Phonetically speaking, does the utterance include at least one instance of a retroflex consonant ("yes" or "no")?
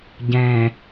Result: no